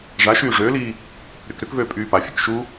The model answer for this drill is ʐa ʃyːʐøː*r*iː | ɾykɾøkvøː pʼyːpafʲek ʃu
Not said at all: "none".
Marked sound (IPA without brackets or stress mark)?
l